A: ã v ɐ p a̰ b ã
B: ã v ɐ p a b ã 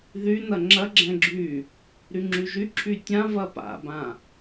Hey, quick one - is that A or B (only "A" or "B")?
A